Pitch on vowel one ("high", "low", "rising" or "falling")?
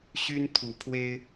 high